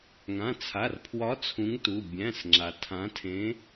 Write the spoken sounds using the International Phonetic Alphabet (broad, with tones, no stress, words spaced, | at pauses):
ŋã˩˧˩t͡sʰa˩˧˩rpʰwɒ˨˥ t͡sʰũ˨˥ŋtu˩˧˩ bʲæ̃˩˧˩sŋ͡ǁa˩ tʰã˨˥tʰẽ˨˥